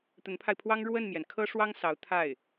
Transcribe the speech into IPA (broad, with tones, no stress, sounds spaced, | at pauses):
t̪ ə˧˥ n pʰ a˧ ɪ̯ pʰ w ɑ˥ ŋ ɻ w ə˥˩ n m j ɛ˩ n kʰ ɤ˥ ʂ w ɑ˥ ŋ s ɑ˧˥ ʊ̯ t̪ʰ a˥˩ ɪ̯